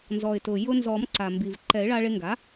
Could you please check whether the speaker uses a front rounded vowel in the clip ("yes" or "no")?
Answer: no